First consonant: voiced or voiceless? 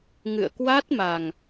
voiced